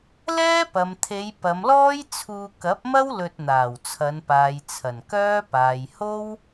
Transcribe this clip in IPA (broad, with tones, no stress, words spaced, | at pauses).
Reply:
lɛː˥pɐ˨m t̪ʰe˨˧j pɐ˨˧mlɔː˥jt͡sʰuː˧ kɐ˨˥p̚mɐ˥w lɵ˧t̚n̪aː˨˩wt͡sʰɐ˨˧npaː˨j t͡sʰɐ˨˩nkœː˥paː˨j ho˥w